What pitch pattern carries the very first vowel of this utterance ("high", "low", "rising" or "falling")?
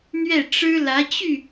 falling